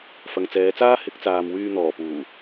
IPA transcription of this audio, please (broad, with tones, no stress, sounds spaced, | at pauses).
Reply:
f ɐ˨ ŋ t͡s ɛː˨˧ t͡s aː˥ h ɪ˨˥ k̚ t͡s aː˨ m w yː˧ n̪ ɔː˨˩ p uː˨˩